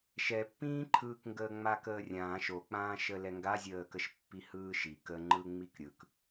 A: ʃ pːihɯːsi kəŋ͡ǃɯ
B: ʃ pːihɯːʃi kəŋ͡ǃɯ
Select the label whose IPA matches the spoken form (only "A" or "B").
B